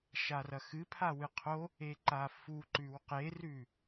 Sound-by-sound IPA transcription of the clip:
ʃarɐxɨ pʰawɨqʰo | eǃafu ǃʉwqerʉ

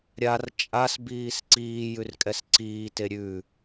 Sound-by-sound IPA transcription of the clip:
ɾʲar t͡ʃʼasbiːs ǀiːjʉr kʼɛsǀiːte ɾʲʉ

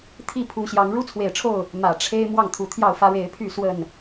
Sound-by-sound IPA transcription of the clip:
t̪ʰi˥˨pʰu˨˦ɕjɑ˨˦ŋ ɻu˦t͡sʰwe˨˩ɪ̯ʈ͡ʂʰo˥˨ʊ̯ | mä˨˩ʈ͡ʂʰe˦ɪ̯ mwɑ˥˨ŋt̪ʰu˨˩t̪ʰjɑ˥˨ʊ̯fä˦ ɻe˨˦ɪ̯pʰy˥˨ swə˥˨n

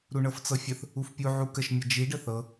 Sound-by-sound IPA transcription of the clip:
ɾuɳɤft͡sɤfʲəθ | ufpʲu ʕukəʃ mʲəd͡ʒi ɖəθɤ

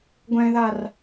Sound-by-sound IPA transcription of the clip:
ɡʷɛ̃ðar

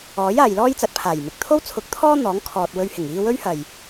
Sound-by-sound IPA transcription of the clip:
ɔː˨˥j aː˨jlɔː˥jt͡sɐ˨˥t̚ pʰaː˨˩jmɪ˨k̚ t̪ʰo˥wt͡sʰʊ˨˥k̚t̪ʰɔː˥ n̪ɔː˨˥ŋkʰɔː˨t̚wɵ˧ɥhɪ˨˩ŋ iː˧wɵ˥ɥ hɐ˨˩j

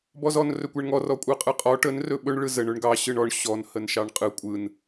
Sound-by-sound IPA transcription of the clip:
bɔzɔn rɵkʷɛɳŋɔ rɔkʷʼɯqʼɯqʼɔ ʈən rɵɓɵɳ ɭɯzəɳ ɵɳɡɑ ɕɯɳɔɳ ɕɔn hənʃɑɳqʼɯ kʷʼɯn

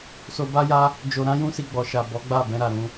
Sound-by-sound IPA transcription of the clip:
so˧ba˦ja˦ | d͡ʒo˧ɾã˦jũ˦si˧ ɡ͡bɔ˨ʃa˨ bɔ˨˦ɡ͡ba˦˨bɛ̃˧ɾa˨ ɾũ˧

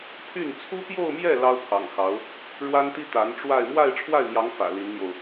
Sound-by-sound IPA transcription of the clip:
pʰy˥˩n t͡sʰu˥pjo˥˧ʊ̯mjɛ˥˩ lɑ˥ʊ̯pʰɑ̰˨˩ŋxɑ˧˥ʊ̯ | ɻwa˥nt̪i˥ t̪a˧˥nʈ͡ʂwa˥˧ɪ̯ mwa˥˧ɪ̯ʈ͡ʂʰwa˥˩ɪ̯mjɑ˧˥ŋ fä̰˨˩li˧˥nn̪jo˧ʊ̯

